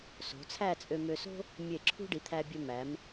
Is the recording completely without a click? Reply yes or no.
no